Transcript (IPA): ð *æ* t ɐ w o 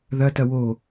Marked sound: incorrect: ɐ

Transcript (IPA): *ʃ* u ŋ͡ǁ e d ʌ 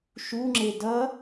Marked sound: correct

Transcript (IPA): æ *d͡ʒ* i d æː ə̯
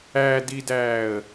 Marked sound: incorrect: d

